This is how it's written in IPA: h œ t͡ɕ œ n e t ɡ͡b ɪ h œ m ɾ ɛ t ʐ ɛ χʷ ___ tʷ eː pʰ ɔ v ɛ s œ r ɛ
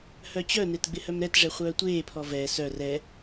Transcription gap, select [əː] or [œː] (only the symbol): œː